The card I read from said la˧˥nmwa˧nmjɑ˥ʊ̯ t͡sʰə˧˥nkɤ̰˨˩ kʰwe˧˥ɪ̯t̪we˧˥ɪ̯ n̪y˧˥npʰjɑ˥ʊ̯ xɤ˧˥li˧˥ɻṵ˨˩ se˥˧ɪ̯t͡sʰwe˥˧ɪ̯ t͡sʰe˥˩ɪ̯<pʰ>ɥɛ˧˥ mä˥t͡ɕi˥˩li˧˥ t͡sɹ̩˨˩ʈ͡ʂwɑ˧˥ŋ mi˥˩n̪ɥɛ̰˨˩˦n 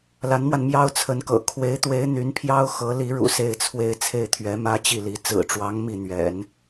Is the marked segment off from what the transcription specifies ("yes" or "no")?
yes